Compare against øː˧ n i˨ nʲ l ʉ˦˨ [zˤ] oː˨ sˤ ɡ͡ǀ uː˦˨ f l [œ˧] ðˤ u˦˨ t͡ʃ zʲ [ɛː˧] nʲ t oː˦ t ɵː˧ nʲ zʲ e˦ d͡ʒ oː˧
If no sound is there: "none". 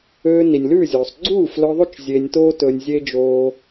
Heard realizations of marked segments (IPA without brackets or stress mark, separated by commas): zʲ, œ˧, eː˧